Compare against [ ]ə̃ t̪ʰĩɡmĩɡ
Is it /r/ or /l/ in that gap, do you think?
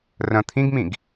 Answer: r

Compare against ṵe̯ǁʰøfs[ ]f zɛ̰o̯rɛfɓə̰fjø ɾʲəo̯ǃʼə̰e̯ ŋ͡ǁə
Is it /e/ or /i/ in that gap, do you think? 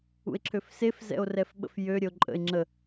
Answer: e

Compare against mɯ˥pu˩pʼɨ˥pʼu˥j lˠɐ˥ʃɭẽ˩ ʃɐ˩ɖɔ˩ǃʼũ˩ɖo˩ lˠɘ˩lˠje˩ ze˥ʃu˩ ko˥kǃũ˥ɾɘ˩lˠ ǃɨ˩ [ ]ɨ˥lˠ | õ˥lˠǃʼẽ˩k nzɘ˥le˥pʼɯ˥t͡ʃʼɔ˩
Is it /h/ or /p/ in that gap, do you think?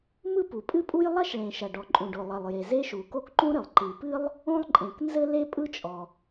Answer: p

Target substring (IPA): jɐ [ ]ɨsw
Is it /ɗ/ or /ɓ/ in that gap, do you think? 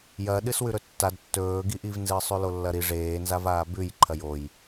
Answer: ɗ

